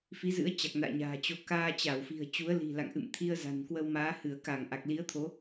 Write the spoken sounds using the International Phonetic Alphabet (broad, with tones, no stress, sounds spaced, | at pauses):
f i˨˦ z ɨ̰˧˥ ə̯ t͡ɕ a˨˩ k̚ n a̰ː˧˨ ɲ a̤ː˨˩ t͡ɕ o˨˦ k aː˧ t͡ɕ a˧˩ w f i̤˨˩ ə̯ t͡ɕ u˨˦ ə̯ l i̤˨˩ l a̰˧˨ ŋ ʔ ɨ̰˧˨ m t̪ʰ i˧ ə̯ z a̤˨˩ n k w ə˧ w m aː˨˦ h ɨ˧˩ ə̯ k a˧˩ ŋ ʔ a˨˩ k̚ l i˨˦ ə̯ t̪ʰ o˨˦